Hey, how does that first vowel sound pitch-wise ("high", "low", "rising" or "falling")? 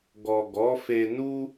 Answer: low